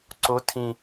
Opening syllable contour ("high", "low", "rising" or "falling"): rising